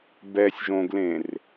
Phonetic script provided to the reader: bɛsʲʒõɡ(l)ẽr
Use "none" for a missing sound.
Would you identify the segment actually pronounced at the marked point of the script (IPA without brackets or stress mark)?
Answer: l